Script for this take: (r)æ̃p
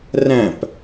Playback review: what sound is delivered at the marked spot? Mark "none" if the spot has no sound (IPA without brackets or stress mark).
r